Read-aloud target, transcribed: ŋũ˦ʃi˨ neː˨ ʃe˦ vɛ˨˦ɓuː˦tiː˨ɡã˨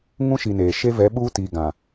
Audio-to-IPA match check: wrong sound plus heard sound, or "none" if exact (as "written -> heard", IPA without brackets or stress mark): none